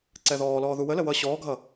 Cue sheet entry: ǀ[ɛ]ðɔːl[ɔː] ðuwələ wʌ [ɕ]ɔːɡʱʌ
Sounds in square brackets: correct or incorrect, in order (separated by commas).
correct, correct, correct